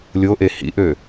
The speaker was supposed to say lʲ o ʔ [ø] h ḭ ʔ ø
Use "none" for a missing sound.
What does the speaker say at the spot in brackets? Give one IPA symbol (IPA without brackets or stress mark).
e